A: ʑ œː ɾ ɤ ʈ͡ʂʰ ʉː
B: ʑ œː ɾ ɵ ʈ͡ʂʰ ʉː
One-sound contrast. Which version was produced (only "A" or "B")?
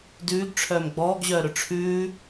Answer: B